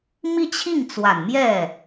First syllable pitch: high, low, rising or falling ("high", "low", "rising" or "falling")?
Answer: falling